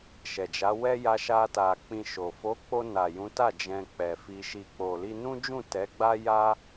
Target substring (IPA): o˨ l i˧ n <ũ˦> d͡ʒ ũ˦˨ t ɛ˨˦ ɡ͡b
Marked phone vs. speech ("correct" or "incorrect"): correct